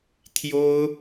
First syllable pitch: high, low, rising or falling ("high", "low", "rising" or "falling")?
high